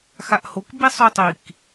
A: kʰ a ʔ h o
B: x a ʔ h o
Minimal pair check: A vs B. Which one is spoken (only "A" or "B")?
B